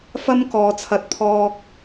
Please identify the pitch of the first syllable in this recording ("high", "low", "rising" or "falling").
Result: high